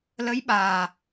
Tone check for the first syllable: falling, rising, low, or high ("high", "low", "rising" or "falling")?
rising